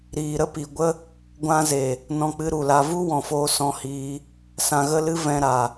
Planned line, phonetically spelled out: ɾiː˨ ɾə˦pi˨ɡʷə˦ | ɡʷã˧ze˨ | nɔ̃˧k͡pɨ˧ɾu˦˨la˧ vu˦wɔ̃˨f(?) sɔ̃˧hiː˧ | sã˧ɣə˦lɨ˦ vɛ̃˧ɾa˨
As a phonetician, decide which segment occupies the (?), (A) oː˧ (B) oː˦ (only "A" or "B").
A